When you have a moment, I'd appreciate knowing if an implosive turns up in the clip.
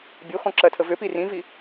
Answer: no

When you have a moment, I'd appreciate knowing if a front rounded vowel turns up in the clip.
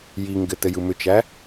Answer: yes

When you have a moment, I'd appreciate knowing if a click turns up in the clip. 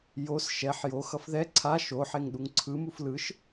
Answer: yes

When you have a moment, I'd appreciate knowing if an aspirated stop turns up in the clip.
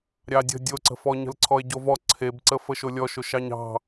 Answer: yes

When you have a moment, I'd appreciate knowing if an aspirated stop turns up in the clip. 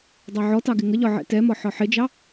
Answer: no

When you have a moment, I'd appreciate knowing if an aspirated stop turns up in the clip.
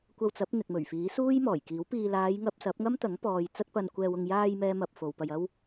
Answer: no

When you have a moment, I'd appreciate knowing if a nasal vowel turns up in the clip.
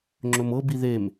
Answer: no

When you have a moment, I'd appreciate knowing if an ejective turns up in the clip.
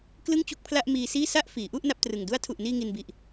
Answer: no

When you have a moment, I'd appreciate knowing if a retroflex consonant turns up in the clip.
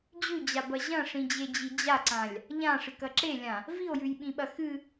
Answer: yes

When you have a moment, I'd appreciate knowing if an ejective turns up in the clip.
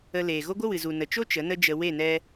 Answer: no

